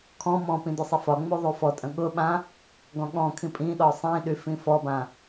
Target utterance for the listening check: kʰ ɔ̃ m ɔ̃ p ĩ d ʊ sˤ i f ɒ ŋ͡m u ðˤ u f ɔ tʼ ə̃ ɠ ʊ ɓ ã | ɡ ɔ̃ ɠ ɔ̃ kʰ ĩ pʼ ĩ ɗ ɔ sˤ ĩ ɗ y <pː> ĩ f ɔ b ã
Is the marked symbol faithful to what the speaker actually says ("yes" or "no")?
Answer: no